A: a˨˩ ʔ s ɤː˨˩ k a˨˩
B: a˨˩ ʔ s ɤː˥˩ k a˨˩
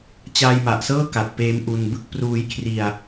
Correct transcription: B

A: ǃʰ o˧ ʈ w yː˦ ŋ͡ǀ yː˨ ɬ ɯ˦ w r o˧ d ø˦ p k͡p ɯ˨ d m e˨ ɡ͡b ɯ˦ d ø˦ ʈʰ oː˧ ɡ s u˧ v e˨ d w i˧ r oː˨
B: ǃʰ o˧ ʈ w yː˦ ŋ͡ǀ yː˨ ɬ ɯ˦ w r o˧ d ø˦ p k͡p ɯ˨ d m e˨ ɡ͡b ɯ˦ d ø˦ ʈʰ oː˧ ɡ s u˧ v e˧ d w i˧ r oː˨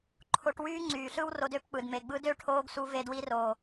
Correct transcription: B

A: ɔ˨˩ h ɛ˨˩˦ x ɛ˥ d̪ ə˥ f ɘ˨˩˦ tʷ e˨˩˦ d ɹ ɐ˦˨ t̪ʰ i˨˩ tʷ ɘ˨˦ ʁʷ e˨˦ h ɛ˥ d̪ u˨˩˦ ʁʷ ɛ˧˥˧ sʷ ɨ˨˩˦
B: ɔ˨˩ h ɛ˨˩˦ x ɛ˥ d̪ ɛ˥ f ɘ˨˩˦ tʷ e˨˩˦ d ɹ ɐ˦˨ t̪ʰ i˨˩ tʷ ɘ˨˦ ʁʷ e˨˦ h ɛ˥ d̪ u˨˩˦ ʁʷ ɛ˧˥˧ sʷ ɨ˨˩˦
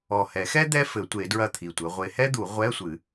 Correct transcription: B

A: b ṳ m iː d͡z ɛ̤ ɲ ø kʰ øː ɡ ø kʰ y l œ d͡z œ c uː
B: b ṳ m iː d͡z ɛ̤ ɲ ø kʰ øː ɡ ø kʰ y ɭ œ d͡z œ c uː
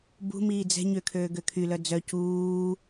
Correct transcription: A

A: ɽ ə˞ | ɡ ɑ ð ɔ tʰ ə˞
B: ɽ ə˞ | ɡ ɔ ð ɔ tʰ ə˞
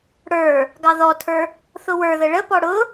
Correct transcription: A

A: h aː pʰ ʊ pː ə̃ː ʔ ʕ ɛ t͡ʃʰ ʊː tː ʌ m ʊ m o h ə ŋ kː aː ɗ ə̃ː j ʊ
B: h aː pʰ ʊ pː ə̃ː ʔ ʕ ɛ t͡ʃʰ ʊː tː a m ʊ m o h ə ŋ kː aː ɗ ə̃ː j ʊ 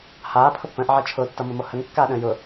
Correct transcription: A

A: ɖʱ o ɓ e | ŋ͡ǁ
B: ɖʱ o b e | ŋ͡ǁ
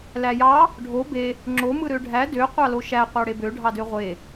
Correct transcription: B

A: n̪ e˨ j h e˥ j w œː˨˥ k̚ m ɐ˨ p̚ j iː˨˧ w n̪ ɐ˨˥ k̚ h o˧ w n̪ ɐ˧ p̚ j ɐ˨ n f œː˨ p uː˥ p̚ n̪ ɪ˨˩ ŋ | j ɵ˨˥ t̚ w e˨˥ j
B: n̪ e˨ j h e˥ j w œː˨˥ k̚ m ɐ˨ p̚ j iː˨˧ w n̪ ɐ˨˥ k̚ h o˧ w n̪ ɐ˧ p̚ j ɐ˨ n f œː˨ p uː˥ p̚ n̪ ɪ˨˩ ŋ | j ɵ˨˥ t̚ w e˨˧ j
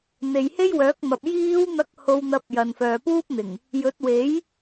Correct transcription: A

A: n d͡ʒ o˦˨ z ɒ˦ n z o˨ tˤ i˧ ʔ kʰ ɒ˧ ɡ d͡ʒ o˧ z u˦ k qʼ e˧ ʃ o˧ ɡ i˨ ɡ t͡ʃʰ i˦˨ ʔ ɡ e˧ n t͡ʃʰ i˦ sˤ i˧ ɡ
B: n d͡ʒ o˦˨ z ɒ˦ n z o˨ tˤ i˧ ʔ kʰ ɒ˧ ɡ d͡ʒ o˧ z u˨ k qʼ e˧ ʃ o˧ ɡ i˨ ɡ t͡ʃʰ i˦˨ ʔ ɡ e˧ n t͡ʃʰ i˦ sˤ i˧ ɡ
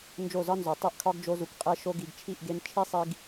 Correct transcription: B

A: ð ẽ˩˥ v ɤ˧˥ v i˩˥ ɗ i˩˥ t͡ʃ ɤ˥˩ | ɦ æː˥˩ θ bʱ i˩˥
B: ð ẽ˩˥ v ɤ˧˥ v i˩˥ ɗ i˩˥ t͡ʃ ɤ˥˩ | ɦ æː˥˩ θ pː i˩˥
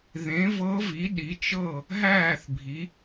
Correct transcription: A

